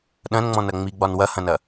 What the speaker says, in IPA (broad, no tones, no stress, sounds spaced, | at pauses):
ɗ ɐ̃ n ŋ͡m ɔ̃ n ɐ ŋ͡m i ɡ͡b ɒ n w ɐ h ɐ̃ n ɐ